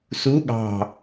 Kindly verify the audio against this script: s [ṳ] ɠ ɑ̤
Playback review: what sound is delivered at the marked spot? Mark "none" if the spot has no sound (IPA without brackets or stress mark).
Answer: u